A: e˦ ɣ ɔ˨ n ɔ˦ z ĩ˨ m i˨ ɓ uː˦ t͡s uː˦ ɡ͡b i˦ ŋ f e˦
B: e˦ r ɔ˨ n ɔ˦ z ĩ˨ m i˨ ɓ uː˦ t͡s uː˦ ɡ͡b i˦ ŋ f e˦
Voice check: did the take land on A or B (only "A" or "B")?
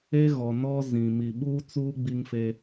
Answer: A